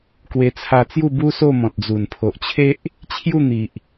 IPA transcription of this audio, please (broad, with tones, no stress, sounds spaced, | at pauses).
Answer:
k w e˧ t͡sʰ a˧ t͡s j u˥˧ b u˦ s o˥˧ m ɔ̃˨ t̚ d͡z u˨˩ n pʰ o˨ ʔ t͡ɕʰ e˦ ʔ | t͡ɕʰ j u˥˧ n̪ i˨ ʔ